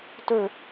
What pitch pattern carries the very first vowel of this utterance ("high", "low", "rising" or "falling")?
falling